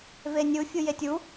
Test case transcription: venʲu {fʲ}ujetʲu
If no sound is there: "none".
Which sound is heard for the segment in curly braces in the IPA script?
fʲ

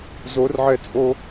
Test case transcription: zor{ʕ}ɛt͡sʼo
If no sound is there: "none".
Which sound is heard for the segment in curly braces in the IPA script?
ʕ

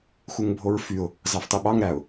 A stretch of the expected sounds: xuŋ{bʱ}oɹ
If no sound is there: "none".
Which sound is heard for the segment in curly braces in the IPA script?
bʱ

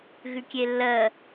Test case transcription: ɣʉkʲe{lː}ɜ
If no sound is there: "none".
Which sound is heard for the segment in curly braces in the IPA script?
lː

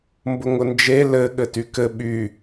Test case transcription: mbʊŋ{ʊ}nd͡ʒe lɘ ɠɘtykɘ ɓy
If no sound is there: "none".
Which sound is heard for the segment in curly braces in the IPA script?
ʊ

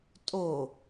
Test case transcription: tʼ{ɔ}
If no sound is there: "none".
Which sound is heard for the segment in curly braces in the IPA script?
o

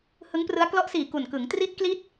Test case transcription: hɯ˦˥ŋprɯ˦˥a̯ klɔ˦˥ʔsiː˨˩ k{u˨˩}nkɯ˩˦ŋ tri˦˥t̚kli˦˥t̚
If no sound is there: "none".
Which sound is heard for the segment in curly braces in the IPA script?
u˨˩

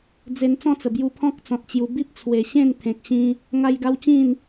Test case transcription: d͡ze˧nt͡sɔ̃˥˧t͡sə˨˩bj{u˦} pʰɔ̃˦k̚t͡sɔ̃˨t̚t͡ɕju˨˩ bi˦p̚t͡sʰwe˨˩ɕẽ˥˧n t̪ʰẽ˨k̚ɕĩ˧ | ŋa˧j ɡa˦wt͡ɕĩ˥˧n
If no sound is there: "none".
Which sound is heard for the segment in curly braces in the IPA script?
u˧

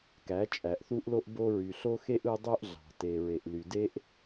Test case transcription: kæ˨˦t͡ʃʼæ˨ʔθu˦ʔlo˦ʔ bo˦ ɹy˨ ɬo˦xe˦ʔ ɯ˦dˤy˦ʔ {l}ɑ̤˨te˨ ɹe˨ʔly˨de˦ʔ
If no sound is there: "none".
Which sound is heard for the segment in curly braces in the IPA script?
ɮ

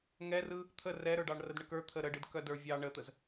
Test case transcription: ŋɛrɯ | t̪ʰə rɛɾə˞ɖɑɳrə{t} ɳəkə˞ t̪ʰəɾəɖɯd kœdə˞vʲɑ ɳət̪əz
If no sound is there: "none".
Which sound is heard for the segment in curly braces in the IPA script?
d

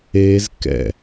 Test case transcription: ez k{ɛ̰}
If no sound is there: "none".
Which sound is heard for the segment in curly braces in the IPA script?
ɛ̰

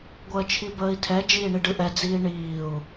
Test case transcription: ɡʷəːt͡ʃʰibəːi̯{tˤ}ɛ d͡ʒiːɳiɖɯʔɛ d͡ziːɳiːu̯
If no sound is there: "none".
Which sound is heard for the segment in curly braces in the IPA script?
tʰ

